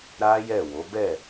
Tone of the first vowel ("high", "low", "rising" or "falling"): high